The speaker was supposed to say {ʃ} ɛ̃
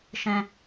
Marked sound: correct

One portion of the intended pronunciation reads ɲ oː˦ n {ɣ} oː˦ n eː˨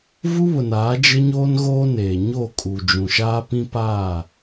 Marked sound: correct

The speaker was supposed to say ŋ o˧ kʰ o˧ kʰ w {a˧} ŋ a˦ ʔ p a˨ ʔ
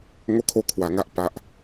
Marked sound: correct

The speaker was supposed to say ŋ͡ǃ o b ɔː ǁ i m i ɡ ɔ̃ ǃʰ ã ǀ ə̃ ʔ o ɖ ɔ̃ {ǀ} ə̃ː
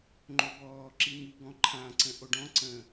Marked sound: correct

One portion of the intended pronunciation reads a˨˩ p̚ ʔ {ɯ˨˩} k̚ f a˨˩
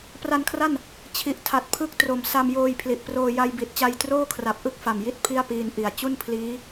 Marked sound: incorrect: ɯ˥˩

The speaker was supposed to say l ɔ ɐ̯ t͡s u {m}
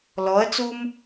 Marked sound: correct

